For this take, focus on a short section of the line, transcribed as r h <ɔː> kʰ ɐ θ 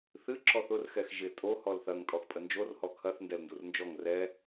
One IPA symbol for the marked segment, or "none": ɔ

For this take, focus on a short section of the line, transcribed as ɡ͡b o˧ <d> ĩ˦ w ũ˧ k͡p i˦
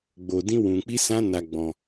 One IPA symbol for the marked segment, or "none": d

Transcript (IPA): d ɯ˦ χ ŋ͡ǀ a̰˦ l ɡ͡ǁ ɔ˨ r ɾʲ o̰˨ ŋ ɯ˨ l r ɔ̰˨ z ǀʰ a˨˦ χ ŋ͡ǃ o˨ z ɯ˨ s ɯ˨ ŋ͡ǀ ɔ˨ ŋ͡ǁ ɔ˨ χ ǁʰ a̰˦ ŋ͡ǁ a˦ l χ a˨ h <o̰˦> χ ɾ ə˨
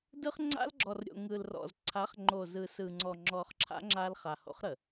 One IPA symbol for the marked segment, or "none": o̰˦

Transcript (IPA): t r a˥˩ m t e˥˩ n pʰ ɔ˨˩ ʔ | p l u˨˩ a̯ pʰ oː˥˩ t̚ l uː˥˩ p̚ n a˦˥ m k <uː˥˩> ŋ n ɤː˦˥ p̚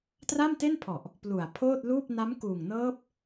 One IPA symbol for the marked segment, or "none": uː˨˩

